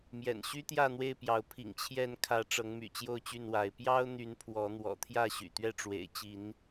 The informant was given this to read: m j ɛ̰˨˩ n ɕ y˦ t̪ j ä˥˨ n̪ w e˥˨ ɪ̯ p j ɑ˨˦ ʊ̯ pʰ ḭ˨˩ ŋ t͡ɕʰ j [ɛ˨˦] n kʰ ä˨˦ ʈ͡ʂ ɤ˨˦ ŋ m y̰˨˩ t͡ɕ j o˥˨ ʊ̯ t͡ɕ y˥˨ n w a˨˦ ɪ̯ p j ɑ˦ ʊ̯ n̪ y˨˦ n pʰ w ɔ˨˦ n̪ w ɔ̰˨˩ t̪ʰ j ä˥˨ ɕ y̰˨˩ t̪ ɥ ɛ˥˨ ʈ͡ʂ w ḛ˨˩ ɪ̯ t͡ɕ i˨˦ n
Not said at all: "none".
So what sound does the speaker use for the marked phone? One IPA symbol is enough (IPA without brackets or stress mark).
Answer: ɛ˨˦